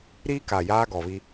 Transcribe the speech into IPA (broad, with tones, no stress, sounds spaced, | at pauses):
ɾ iː˦ k aː˨ j aː˦ ɡ ɔ˨ β i˦